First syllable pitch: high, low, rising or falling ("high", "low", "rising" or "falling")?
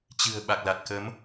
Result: low